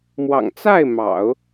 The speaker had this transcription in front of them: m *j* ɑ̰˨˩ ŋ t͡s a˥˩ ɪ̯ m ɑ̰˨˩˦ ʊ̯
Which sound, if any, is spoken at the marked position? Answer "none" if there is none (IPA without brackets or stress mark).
w